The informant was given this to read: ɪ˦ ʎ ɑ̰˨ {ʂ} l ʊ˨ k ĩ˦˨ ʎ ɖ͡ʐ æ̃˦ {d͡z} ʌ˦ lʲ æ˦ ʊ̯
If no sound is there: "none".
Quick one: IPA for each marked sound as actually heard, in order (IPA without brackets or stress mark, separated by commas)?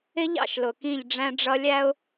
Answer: ʃ, ɖ͡ʐ